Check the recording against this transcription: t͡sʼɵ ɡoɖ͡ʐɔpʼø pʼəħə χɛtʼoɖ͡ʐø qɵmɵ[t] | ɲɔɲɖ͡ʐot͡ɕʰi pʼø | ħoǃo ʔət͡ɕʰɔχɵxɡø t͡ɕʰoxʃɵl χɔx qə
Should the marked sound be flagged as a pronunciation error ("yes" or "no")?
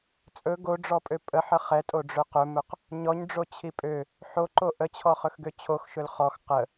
yes